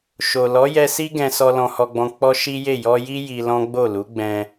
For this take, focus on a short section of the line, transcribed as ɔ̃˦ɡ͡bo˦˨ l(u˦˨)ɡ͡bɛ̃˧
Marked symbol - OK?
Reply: no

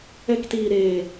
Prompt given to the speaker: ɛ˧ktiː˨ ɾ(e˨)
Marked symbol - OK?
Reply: no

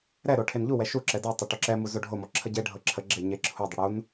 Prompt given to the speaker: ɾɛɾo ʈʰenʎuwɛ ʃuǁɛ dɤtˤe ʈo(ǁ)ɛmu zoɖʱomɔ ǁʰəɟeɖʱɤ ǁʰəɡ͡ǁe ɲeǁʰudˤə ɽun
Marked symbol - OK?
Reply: yes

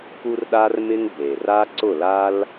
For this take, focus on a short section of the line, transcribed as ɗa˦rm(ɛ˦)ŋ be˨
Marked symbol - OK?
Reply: no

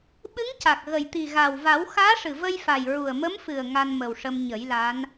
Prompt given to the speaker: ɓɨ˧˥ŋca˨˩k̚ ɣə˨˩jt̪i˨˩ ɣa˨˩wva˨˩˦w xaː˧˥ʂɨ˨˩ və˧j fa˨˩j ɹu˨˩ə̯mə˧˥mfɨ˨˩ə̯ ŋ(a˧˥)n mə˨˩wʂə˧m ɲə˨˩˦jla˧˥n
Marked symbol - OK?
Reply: no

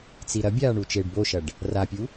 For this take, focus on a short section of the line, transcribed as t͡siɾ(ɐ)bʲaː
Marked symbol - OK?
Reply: yes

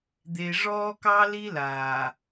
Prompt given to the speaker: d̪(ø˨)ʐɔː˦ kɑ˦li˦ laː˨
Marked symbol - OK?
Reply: no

